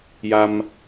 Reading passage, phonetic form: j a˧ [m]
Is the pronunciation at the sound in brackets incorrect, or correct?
correct